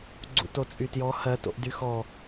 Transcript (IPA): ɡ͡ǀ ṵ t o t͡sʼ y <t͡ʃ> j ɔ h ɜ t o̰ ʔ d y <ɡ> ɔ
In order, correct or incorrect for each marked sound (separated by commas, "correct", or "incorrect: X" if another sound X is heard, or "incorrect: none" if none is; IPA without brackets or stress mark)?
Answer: incorrect: t, incorrect: x